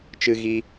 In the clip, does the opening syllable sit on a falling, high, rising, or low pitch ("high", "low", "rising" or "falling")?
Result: high